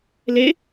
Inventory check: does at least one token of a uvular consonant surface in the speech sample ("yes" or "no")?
no